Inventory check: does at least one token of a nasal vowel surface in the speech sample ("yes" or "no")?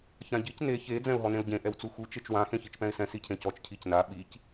yes